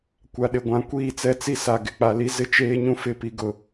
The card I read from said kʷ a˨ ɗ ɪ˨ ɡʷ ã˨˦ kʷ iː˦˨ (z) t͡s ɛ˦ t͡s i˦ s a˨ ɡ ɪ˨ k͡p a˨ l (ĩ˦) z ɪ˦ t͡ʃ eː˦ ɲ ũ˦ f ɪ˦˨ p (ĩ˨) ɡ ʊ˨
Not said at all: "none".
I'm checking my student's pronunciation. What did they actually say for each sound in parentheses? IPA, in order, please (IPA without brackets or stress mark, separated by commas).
none, i˦, i˨